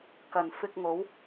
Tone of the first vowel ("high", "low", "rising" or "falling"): low